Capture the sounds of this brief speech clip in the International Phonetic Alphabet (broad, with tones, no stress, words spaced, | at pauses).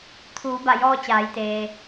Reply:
t̪ʰuː˩˧ba˧˩jɔː˧ t͡ɕaː˩˧jt̪eː˩